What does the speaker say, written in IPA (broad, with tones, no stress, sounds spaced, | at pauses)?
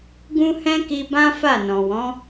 ɡ ũ˦ h ɛ̃˦ k i˧ b ã˦ f a˦˨ n ɔ̃˨ w ɔ̃˨˦